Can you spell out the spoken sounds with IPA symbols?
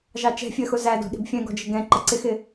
ʒ ɑ t͡ʃ ɛ̤ fʲ ɜ x ʊ z æ d ɔ̤ ɗ i̤ b fʲ ɛ̃ ɡ ɔ̤ d͡ʒ ɪ ɡ ɛ̃ ǃ ə ǀ ɪ x ɪ

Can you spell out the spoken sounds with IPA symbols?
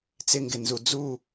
t͡s ɪ ŋ ɡ ɪ n z u d͡z u

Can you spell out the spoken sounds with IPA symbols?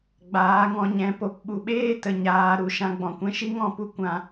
ɡ͡b aː˨˦ ŋ ɔ̃˧ ɲ ɛ̃˨˦ p o˨ p ɓ u˨ ɓ eː˦ t ə˨ ɲ aː˨˦ ɾ u˨˦ ʃ ã˧ ɡ͡b ɔ̃˨ kʷ ɛ̃˧ ʃ i˦ ŋ ɔ̃˦˨ p u˦ kʷ ã˧

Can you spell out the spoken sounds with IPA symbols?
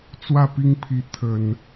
t͡s w ä˥˨ p i˦ ŋ pʰ i˨˦ t̪ʰ ə˨˩ n

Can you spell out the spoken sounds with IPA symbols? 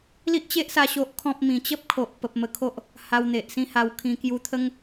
l i˦ ʔ t͡ɕ e˦ ʔ s a˧ ɕ o˦ ʔ kʰ ɔ̃˦ p̚ m ĩ˨˩ t͡ɕ ə˦ p̚ kʰ o˨ ʔ p ə˨ p̚ m ə˧ kʰ o˦ ʔ | h a˧ w n̪ e˨ ʔ s ĩ˥˧ h a˧ w kʰ ĩ˧ k j u˧ t̪ʰ ə˦ ŋ

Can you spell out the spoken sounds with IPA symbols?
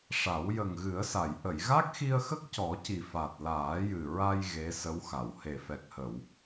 ʂ a˨˩˦ w j ə˨˩ ŋ ɣ ɨ˨˩˦ ə̯ s a˨˩˨ j ʔ ə˨˩˨ j ɣ a˦˥ k̚ x i˧ ə̯ x ə˦˥ k̚ c ɔ˨˩˦ c i˨˩ f a˨˩ t̚ l aː˨˩˦ j ɨ˨˩ ɹ a˧ j ɣ e˧˥ s ə˧˥ w x a˨˩˨ w h e˨˩ f ɛ˨˩ k̚ h ə˨˩˨ w

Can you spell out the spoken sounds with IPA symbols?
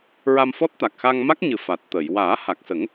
ɹ a˧ m f ɔ˦˥ t̚ t̪ a˨˩ k̚ x a˧ ŋ m a˦˥ k̚ ɲ ɨ˨˩ f a˨˩ t̚ t̪ ə˨˩˨ j w aː˨˩˦ h a˨˩ k̚ s ə˨˩˦ ŋ

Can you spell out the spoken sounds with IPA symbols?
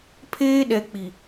pʰ eː˦ ɗ ɛ˨ k͡p i˨

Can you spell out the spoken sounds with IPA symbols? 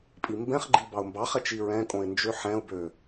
pʼ i m b ɛ̃ χ ɡ͡ǃ i b ɑ ʊ̯ m b ɑ χ ɛ t͡ʃ i ɹ ɛ̃ kʼ õ ɪ̯ n d͡ʒ ø ħ ɛ̃ ʊ̯ b ø

